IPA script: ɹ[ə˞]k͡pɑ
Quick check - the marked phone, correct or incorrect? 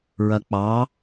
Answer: incorrect: ɐ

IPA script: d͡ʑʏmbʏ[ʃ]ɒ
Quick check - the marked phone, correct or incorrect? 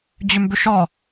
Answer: correct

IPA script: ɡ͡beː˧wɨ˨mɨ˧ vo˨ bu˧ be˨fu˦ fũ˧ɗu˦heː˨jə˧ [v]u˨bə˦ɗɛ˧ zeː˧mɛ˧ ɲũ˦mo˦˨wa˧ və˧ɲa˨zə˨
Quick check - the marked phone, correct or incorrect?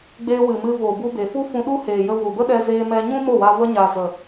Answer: correct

